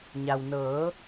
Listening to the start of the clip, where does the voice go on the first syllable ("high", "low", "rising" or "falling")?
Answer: low